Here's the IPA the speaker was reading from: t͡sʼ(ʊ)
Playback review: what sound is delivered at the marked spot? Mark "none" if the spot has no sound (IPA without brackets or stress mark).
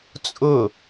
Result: ʊ